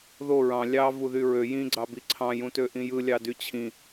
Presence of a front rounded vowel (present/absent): present